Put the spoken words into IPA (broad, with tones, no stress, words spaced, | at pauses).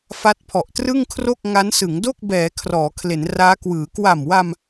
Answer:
fa˦˥t̚pʰɔ˨˩ʔ trɯ˥˩ŋkʰro˥˩k̚ ŋa˦˥nsɯ˩˦ŋ do˥˩k̚bɛː˩˦ kʰrɔː˩˦kʰle˩˦n raː˦˥kwɯː˩˦ kwa˨˩mwa˧m